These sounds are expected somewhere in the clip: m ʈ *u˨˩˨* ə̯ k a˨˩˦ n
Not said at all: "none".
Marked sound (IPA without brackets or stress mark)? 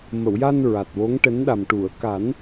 u˨˩˨